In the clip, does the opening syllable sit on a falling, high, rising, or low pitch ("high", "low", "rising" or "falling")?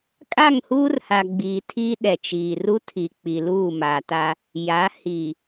falling